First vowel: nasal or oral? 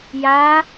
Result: oral